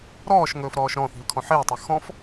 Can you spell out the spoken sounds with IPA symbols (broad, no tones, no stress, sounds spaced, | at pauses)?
ɾ ɔː ʃ ŋ ɵː f ɾ ɔː ʃ ɾ ɔ̃ θ i̤ l kʰ ɔ̃ ħ eː tˤ ɤ x ɔ̃ f